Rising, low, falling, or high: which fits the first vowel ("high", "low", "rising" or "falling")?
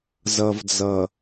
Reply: low